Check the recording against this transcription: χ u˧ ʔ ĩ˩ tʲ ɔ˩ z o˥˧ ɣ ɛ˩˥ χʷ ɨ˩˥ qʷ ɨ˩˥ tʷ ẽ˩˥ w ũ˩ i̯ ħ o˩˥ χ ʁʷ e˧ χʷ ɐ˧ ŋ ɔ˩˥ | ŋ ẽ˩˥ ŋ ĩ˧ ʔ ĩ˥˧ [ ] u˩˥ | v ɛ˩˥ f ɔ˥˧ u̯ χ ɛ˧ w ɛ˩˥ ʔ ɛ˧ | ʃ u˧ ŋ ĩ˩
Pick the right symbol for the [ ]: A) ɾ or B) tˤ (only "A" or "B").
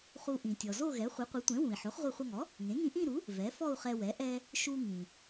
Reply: A